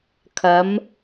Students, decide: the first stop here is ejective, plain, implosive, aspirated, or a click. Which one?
aspirated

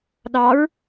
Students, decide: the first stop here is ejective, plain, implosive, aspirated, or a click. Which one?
implosive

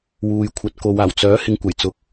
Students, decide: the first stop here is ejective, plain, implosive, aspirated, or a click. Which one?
aspirated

